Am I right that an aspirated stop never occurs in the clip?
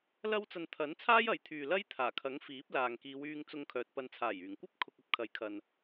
no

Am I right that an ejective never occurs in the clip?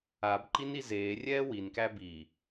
yes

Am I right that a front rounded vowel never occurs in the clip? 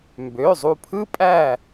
no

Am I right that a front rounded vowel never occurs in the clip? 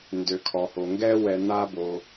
no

